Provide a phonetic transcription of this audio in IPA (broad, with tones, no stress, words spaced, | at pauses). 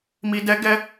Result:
mi˨dɛ˨˦ ɡɛ˧